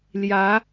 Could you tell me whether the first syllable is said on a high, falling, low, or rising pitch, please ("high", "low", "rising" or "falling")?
rising